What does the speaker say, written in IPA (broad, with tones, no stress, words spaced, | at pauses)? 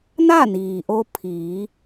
na˥˨niː˩ ʔo˧pʰiː˩˧